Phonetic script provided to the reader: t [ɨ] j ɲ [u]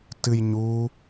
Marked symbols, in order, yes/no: yes, no

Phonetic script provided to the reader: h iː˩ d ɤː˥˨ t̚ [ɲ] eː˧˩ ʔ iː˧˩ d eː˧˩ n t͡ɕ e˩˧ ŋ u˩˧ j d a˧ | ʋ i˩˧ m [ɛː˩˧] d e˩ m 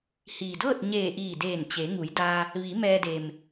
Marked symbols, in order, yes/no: yes, no

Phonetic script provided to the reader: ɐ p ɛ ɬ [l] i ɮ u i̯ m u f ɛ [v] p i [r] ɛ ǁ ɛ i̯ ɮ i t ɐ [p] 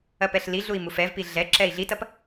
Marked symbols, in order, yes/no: yes, yes, no, yes

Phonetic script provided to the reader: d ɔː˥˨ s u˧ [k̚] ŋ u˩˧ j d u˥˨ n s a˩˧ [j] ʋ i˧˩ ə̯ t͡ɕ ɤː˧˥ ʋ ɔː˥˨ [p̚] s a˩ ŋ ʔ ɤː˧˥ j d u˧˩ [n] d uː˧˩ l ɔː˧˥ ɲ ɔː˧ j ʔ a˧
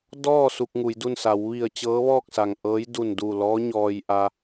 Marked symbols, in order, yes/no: yes, no, no, yes

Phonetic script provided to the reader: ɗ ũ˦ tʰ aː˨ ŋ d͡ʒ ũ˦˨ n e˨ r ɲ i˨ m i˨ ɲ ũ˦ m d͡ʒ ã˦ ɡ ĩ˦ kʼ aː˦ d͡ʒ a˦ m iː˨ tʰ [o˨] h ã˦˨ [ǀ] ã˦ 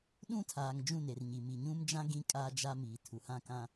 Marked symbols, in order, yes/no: no, no

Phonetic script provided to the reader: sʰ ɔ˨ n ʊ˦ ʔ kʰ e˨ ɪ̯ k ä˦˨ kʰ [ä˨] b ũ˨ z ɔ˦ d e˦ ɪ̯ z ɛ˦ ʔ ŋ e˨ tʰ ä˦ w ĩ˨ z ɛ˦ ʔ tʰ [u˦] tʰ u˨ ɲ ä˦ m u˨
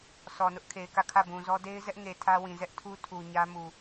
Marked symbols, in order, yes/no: no, yes

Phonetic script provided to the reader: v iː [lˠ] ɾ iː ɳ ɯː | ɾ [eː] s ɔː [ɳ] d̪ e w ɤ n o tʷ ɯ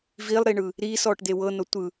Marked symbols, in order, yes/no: yes, no, no

